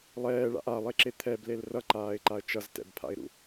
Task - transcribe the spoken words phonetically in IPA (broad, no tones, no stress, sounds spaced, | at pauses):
lˠ ɛː ɭ a̰ ʔ a lˠ e ǁ e t̪ʰ ɛ b l e l r ʌ ǃ aː ɪ̯ ǃ a ə̯ t͡ʃ ʌ z t ɛ̰ b pʰ a̰ ɪ̯ ɾ ṵ